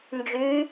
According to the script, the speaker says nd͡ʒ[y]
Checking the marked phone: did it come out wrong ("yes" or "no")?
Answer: no